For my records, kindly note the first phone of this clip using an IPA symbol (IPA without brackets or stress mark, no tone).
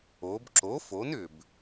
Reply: o